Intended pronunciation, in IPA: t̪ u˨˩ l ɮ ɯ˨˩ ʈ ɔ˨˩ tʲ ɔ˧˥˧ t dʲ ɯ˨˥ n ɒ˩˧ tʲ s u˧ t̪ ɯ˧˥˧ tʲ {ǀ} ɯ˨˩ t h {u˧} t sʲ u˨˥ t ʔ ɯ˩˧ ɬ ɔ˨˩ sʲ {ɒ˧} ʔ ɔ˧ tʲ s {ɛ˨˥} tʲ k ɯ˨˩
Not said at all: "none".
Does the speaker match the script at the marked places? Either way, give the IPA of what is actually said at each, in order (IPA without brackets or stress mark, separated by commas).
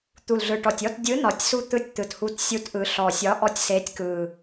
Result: t̪, u˨˥, ɒ˨˥, e˨˥